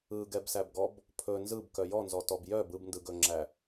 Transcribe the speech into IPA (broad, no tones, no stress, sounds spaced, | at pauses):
ɯ ɡ ɛ b s æ b ɡ ɔ b | pʰ ɵ n z ɯ b k œ j ɔ n z ɔ t ɔ b j œ b ɯ b n d ɯ ɡ ɵ ŋ͡ǁ æ